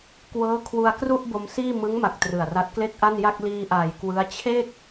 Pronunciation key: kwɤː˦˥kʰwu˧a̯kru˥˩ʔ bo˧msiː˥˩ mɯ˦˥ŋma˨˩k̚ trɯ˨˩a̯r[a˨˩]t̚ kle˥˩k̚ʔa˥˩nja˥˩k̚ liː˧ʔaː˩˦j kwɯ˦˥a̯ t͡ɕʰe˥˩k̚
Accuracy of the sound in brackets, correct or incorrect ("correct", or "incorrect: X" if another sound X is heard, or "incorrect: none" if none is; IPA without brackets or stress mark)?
incorrect: a˦˥